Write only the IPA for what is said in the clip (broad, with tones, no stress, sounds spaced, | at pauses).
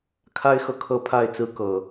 kʰ a˦ ɪ̯ x ɤ˨ kʰ ɤ˦ pʰ a˥˨ ɪ̯ t͡s ɹ̩˦ k ɤ˨˩